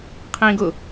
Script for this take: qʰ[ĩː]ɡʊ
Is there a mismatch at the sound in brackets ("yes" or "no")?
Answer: no